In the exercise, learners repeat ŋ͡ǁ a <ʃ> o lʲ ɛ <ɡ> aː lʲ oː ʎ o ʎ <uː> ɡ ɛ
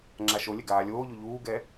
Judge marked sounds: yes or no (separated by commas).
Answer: yes, yes, yes